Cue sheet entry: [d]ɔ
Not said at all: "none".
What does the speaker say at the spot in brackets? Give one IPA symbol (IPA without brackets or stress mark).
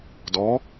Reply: d